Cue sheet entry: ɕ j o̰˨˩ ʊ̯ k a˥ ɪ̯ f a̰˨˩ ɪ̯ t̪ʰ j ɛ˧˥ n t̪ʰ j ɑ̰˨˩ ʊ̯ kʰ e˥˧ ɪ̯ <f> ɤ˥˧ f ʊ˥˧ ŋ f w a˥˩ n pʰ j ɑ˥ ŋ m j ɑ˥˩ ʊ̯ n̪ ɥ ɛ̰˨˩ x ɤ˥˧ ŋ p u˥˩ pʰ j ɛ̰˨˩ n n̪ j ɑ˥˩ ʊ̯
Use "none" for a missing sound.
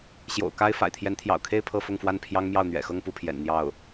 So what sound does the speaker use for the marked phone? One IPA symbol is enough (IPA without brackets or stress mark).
pʰ